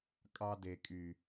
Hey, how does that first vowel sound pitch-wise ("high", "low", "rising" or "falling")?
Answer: high